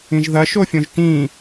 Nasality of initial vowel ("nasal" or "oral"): nasal